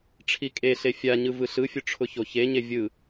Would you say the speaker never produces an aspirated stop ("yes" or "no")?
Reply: no